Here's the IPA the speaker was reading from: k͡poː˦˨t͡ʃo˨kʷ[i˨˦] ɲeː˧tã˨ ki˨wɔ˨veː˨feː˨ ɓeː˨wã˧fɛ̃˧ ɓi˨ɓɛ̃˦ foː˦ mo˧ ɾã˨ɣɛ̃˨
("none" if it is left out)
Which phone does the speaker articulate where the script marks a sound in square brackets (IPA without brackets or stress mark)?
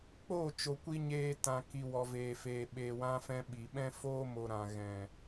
i˧